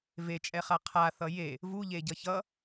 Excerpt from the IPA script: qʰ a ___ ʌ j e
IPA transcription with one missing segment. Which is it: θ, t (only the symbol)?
θ